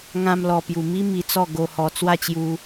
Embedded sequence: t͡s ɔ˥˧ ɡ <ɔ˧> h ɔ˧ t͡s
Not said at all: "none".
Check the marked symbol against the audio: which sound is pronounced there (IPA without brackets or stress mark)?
o˧